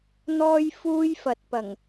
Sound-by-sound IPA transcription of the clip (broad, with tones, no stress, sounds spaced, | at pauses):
n̪ ɔː˥ j f uː˥ j f ɐ˨ t̚ p ɐ˨˩ ŋ